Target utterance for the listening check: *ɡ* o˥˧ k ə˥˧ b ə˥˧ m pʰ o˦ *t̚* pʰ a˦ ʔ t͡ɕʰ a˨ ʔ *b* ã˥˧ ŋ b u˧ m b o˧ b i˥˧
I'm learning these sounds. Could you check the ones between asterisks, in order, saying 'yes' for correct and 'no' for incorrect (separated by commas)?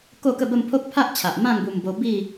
no, no, no